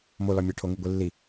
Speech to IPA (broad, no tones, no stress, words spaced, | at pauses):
molɒmʲæ ʈʰoŋiɡʷilːi